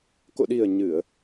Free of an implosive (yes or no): no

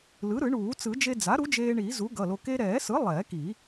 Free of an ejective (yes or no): yes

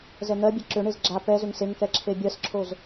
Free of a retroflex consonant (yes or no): no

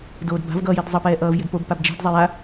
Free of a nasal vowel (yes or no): yes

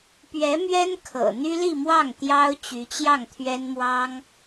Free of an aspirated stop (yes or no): no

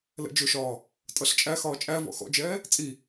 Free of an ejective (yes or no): no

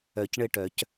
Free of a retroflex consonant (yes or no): no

